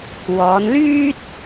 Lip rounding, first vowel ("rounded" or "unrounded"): rounded